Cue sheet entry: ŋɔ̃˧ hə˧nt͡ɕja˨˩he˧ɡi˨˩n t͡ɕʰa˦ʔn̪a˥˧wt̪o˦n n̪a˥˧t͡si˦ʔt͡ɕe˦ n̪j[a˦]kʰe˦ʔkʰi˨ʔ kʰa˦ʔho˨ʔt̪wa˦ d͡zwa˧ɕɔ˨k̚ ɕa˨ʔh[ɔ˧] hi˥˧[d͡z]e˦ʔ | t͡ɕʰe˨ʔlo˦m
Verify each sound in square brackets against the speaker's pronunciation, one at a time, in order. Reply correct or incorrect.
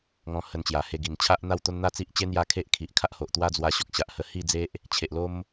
correct, incorrect: ə˧, correct

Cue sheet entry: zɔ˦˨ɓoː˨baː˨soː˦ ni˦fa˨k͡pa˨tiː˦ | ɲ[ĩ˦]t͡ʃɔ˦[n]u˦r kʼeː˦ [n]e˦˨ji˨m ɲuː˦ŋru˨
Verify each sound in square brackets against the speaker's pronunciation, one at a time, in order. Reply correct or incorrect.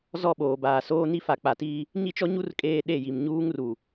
incorrect: i˦, incorrect: ɲ, incorrect: ɗ

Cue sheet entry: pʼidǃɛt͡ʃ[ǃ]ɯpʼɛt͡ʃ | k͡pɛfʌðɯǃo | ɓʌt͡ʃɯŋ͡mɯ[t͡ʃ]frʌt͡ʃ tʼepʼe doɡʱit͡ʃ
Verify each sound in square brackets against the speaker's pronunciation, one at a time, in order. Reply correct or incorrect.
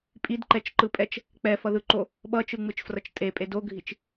correct, correct

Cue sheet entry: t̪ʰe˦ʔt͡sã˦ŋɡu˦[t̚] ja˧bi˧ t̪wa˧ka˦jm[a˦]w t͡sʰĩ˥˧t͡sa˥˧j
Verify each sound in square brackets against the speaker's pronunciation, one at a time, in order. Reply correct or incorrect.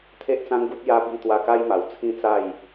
correct, incorrect: a˨˩

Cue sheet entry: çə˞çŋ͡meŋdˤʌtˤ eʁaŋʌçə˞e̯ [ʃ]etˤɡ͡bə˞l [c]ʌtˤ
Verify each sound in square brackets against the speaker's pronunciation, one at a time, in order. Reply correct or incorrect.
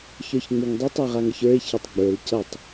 incorrect: ç, correct

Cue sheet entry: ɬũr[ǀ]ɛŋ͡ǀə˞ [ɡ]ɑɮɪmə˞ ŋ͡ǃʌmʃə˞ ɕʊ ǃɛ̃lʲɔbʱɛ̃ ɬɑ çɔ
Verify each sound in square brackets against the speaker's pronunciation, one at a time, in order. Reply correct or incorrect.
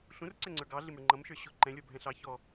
correct, correct

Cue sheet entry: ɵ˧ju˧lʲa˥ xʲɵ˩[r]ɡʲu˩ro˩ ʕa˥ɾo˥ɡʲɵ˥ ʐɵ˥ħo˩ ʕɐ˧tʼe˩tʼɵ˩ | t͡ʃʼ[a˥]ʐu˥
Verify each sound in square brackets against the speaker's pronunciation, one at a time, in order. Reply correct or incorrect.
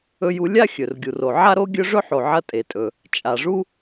correct, incorrect: a˩

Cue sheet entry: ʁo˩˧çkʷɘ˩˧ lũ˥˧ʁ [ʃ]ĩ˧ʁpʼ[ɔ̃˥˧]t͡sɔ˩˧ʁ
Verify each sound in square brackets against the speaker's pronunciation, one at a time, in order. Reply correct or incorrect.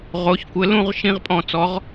correct, incorrect: ɔ̃˧˩

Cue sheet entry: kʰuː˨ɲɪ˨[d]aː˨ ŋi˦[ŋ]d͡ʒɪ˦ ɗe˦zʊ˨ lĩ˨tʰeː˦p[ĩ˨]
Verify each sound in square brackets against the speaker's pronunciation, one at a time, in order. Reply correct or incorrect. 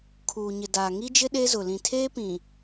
correct, incorrect: none, correct

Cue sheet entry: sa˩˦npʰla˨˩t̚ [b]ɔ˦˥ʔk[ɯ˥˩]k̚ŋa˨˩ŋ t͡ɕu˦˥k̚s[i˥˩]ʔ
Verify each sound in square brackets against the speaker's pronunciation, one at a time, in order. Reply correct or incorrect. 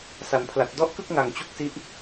incorrect: d, correct, incorrect: i˦˥

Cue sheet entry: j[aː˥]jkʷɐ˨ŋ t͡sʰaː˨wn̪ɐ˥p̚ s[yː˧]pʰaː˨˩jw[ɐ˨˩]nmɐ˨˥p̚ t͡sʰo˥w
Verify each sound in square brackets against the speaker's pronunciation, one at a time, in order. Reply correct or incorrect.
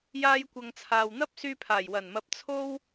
incorrect: aː˧, correct, correct

